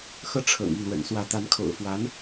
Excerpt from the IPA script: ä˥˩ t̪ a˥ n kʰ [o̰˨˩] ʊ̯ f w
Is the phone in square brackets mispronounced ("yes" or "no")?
no